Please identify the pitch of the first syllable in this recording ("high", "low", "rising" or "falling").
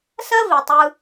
high